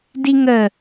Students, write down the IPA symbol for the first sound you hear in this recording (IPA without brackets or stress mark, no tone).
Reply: d